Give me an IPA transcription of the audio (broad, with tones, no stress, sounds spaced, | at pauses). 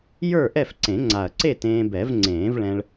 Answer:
j ə˞˥˨ ʔ ɛ˥˨ f ǀ ẽ˨˩˦ ŋ͡ǀ a˨˩ ɐ̯ ǀ e˥˨ t ẽː˧ b ɛ˨˩˦ v ŋ͡ǀ ẽː˨˩˦ v ɭ ɛ̃˧ ɭ